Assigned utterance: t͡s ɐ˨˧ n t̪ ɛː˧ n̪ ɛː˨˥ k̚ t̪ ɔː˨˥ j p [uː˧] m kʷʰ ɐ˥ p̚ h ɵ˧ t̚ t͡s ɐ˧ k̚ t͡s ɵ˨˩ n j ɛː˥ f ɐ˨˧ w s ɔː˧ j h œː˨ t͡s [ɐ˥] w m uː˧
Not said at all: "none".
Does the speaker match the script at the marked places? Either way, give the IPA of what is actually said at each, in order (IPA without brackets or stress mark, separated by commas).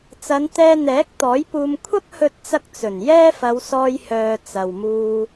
uː˧, ɐ˨